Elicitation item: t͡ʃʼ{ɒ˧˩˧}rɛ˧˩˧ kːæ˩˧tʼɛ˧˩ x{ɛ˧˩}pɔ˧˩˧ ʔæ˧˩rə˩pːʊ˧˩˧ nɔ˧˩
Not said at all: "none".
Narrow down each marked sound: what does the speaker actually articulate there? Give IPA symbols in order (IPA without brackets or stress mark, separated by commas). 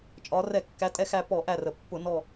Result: ɒ˩˧, æ˧˩